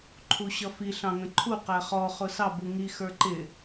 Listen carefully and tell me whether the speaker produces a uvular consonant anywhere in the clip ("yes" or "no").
yes